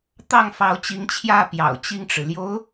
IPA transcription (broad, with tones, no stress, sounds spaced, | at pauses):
t̪ ɑ˥˩ ŋ f ɑ˧˥ ʊ̯ t͡ɕ i˧˥ ŋ t͡ɕʰ j ä˥˩ p j ɑ̰˨˩ ʊ̯ t͡ɕ i˥˩ ŋ ʈ͡ʂ ɻ̩˩ l j o˧˥ ʊ̯